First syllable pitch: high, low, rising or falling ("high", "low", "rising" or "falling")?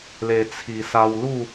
low